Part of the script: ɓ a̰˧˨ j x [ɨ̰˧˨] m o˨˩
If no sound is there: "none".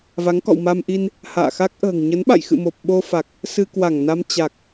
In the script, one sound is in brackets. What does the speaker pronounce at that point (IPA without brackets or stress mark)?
ɨ̰˧˨